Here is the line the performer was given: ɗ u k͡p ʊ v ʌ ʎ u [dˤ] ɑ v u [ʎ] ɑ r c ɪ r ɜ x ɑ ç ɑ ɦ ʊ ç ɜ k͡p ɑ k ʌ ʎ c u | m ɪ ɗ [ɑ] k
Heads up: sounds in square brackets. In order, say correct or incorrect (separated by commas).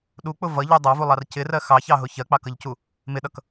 correct, incorrect, incorrect